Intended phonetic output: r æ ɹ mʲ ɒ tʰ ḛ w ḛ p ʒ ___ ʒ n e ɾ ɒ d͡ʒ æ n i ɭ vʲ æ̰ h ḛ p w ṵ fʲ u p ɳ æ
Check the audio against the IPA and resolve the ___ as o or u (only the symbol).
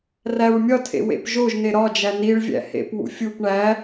o